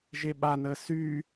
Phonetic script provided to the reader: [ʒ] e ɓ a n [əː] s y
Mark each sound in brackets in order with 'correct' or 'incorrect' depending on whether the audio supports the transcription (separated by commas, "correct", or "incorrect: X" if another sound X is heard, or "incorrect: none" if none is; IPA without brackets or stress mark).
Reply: correct, correct